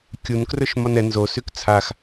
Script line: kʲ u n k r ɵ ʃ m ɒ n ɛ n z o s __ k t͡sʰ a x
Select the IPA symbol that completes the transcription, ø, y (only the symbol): y